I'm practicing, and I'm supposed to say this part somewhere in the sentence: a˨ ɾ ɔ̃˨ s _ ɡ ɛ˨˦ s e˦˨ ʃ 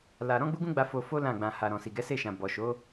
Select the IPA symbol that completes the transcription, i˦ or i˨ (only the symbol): i˨